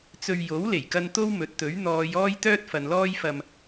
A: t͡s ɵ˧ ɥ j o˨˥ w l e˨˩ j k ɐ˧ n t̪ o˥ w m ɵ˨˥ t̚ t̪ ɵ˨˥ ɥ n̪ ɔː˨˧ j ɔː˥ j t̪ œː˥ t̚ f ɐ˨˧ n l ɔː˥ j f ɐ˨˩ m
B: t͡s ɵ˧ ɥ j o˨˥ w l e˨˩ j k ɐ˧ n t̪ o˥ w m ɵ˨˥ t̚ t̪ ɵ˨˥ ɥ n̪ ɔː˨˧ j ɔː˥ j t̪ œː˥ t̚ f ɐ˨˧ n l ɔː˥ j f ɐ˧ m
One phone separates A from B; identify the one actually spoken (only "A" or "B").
B